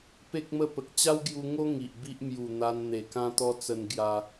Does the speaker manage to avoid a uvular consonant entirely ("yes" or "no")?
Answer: yes